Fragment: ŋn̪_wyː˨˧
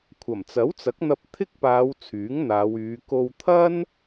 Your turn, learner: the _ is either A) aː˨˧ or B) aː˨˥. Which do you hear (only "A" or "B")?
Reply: A